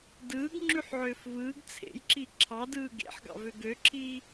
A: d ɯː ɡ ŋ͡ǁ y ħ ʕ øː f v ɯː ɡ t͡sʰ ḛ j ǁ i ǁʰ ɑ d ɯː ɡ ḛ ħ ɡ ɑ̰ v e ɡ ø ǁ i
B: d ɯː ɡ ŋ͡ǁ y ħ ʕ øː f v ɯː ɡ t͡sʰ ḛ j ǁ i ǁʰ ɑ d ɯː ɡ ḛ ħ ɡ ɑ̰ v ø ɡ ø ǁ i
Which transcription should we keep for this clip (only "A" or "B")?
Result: B